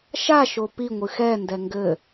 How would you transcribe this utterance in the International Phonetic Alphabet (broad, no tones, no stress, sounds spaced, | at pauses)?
ʃ a ʃ o p i ŋʷ ɨ x ɛ n d ɛ ŋ ɡ ɘ